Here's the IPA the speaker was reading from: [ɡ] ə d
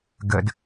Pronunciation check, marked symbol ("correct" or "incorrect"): correct